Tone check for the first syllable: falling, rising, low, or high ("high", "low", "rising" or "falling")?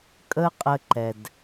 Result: high